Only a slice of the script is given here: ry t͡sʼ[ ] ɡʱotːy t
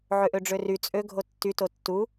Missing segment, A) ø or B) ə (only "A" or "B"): A